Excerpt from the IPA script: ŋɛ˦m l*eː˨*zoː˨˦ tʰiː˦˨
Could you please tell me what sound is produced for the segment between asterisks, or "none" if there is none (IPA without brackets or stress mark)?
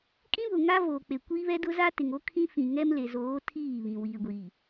e˨